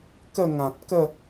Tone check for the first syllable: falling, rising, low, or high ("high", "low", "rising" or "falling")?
falling